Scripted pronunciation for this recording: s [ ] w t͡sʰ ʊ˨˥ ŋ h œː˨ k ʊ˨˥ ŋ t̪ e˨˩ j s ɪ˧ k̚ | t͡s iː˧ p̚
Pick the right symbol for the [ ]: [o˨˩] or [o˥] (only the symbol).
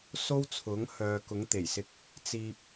o˥